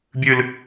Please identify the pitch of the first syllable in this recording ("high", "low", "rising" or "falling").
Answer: high